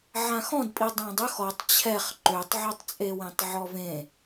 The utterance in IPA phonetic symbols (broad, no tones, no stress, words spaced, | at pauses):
ʕãxɔ̃dpʼi dˤãdˤɵx ɔtˤ t͡ɕʰɛχ ǃøtˤʕøtˤt͡sʼewẽtˤ ʕɔvẽ